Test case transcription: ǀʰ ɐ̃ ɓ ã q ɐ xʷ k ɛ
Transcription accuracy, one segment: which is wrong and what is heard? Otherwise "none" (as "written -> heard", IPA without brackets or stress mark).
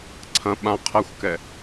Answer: q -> qʰ